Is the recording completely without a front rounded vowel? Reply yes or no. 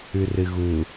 yes